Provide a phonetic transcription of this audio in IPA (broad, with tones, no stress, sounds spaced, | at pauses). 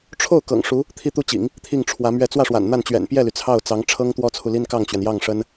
ʈ͡ʂʰ o˥˩ ʊ̯ k ɤ̰˨˩ ŋ ʂ u˧˥ | t̪ʰ i˥˧ t̪ u˥˩ t͡ɕ ḭ˨˩˦ ŋ | t̪ʰ i˥˩ ŋ ʈ͡ʂʰ w ä˧˥ m ɥ ɛ˥˧ t͡s w ä˥˩ ʂ w a̰˨˩ n n̪ a˥˩ n t͡ɕ ɥ ɛ̰˨˩ n p j ɛ˥˩ l y˩ t͡sʰ ɑ˥˩ ʊ̯ t͡s ɑ˧˥ ŋ ʈ͡ʂʰ ɤ˥ ŋ t̪ w ɔ˥ t͡sʰ u˨ l i˥ n k ɑ˥˩ ŋ t͡ɕ ɥ ɛ˩ n j ɑ˥˩ ŋ ʂ ə˥ n